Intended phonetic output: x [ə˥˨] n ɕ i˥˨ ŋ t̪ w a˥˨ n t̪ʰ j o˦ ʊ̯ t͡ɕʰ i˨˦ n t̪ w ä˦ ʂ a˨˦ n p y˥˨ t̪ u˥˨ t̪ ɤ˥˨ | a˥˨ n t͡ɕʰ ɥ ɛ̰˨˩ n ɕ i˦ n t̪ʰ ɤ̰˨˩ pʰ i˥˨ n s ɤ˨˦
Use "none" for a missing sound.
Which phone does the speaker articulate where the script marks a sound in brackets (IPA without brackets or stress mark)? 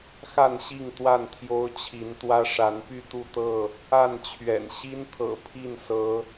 a˥˨